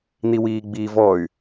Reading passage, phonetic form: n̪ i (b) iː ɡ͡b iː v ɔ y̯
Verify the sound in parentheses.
incorrect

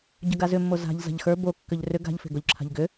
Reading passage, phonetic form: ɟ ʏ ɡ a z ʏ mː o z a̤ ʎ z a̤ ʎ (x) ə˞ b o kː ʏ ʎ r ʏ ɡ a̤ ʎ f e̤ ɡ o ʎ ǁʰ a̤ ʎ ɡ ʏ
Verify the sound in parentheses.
correct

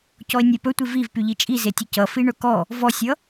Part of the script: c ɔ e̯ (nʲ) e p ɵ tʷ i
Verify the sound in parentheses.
correct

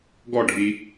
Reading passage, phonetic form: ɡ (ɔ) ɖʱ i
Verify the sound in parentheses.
correct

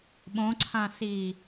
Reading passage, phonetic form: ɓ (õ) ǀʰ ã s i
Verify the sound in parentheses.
correct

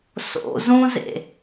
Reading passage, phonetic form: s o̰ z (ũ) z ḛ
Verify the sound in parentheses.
correct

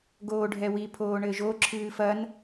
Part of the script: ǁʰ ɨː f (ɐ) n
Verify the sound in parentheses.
correct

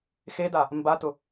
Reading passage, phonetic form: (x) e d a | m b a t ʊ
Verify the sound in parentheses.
correct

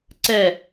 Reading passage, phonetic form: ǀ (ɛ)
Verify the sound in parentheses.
correct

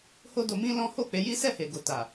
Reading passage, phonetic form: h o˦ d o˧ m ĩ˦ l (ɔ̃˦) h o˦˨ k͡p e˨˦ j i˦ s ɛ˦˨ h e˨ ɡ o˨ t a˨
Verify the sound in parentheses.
correct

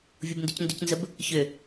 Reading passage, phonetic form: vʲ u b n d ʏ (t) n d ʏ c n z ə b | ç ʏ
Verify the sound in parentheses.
incorrect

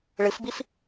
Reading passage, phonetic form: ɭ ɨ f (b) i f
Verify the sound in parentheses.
correct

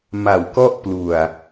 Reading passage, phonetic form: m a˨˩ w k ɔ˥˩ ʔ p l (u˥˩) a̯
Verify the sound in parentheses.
incorrect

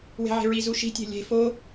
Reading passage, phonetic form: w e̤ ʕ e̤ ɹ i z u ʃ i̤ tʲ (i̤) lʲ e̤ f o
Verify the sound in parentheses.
incorrect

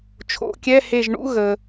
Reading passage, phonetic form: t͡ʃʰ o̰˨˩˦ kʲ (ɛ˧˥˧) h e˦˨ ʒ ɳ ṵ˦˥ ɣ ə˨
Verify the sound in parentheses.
correct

